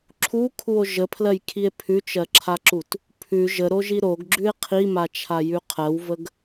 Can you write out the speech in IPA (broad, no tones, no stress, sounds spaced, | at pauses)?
ǁʰ u kʰ u o̯ ʒ ə pʰ l ɜ j kʰ i e̯ pʰ ʉ t͡ʃ ɜ ǁʰ a ǁ u t | pʰ ʉ ʒ ə ɾ o ʒ i ɾ o ɡ ɡ͡ǁ ʉ e̯ qʰ i m a t͡ʃʰ a j ʉ qʰ ɜ w v ə ɡ